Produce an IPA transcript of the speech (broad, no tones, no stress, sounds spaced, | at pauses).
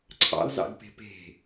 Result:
ǀʰ ɑ̰ l z ɑ̰ ɡ p e̤ p e̤